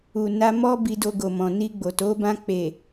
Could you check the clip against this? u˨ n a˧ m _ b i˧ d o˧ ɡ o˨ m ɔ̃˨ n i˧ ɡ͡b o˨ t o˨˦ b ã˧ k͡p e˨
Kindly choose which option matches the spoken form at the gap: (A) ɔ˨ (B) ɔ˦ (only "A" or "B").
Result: B